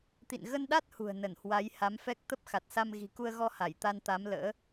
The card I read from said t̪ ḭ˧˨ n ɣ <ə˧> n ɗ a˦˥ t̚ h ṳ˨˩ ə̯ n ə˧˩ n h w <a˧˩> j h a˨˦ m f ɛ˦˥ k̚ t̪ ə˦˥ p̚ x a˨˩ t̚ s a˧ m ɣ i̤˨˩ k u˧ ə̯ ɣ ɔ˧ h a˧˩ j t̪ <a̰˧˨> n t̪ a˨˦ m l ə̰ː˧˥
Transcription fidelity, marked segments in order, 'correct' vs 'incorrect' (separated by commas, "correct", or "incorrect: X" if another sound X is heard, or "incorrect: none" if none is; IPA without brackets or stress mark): correct, incorrect: a˨˦, incorrect: a˧